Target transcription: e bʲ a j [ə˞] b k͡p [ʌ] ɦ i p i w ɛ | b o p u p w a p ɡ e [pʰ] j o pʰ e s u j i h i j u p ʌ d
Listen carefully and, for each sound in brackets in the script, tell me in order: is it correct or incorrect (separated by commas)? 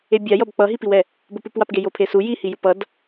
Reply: incorrect, correct, incorrect